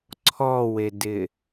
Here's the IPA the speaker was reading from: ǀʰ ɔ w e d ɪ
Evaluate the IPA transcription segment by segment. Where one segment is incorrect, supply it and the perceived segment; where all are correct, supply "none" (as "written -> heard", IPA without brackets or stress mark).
none